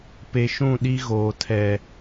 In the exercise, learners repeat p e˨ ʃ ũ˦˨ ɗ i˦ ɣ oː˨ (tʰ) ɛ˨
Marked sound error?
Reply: no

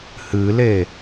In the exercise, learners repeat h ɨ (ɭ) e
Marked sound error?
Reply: yes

